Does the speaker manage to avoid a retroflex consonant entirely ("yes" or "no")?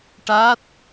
no